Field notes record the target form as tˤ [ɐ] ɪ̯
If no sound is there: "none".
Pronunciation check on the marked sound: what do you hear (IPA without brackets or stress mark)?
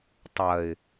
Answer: ɐ